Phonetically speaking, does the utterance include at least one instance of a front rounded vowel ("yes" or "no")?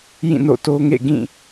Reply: no